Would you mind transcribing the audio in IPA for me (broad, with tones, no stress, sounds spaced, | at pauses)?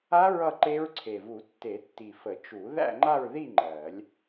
a˦˥ ɹ ʌ˥˧ ǃ e˦˥ ɹ ǀʰ e˨˩ v u˨˩˦ tː e˨˩˦ tː i˨˩ f ə˨˩˦ t͡ʃ u˨˩˦ ð æ̰˥˧ ŋ͡ǃ a˥˧ ɹ ð i˥˧ ŋ͡ǃ ɜ˨˩˦ lʲ